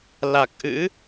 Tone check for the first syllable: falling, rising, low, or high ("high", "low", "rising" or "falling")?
low